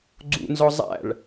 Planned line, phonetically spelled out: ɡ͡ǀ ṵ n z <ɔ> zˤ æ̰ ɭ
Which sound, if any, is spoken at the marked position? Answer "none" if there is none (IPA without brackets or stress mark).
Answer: ɔ